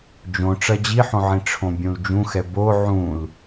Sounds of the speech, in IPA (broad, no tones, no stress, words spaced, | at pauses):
d͡ʒõ ʈ͡ʂɐd͡ʑiħõʕĩ ʈ͡ʂʰõbʲũld͡ʒũxɛ bo ʕũl